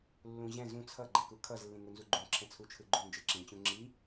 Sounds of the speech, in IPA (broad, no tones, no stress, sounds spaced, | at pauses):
lː ũ ʑ ɛ̃ z ũ t͡sʰ ʌ ɡ͡ǃ ɛ k u kʰ ʌ z lː ĩ ŋ u n z u ɡ͡ǃ ũ ǁʰ ɛ̃ t͡sʰ u t͡ʃʰ ɯ ɡ͡ǃ u n d͡ʒ ɯ ǁ ĩ t͡ɕ ũ ŋ͡ǁ i